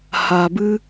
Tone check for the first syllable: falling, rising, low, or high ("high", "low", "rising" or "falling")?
low